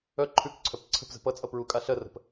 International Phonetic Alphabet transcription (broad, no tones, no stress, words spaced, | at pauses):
œ ǃʰʉkǀʰœp ǀʰə̤pzə̤ pʌt͡sʼʌ pɹu kʼaɬɜrə̤p